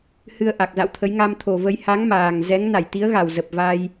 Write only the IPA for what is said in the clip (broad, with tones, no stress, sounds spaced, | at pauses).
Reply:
h ɨ˧ ə̯ ʔ a˨˩ k̚ z a̰˧˨ w t̪ʰ ə˨˦ j ŋ a˧ m t̪ʰ o˨˩ v ə˧ j h a˨˦ ŋ m aː˨˩ ŋ z ɛ˨˦ ŋ n a˧˩ j t̪ i˨˦ ə̯ ɣ a˨˩ w z ə˨˩ p̚ v a˧ j